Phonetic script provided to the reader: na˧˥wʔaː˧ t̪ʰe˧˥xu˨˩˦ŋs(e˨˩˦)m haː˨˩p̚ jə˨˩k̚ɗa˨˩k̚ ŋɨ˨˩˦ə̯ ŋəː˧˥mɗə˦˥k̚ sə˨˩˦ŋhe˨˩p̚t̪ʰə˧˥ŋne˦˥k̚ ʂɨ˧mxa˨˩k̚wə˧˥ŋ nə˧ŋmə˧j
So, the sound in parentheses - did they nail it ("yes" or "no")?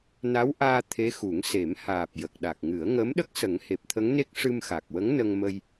yes